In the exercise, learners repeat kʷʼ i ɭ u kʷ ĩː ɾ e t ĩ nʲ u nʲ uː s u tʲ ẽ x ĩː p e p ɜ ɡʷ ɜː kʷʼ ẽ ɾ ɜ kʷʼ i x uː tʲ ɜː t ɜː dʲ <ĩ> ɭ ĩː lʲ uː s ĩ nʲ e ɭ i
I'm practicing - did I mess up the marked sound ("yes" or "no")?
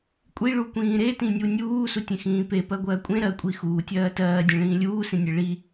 yes